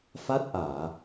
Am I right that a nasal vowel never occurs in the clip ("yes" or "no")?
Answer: yes